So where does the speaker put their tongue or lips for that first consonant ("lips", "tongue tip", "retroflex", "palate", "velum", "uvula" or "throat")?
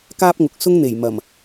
velum